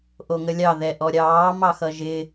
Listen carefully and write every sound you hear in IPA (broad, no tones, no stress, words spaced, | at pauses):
ʔoŋəlʲɑ ðɛʔɔɾʲɑː mɑxʌʒɪ